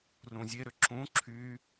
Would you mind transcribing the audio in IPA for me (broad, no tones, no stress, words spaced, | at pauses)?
rũzʲeɾʏ ǁũ ǁʰy